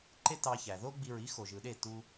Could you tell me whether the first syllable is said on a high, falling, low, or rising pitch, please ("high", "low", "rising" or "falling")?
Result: high